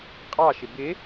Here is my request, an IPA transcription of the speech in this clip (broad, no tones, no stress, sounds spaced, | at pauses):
qʼ ɑ ʃ ɪ b ɪ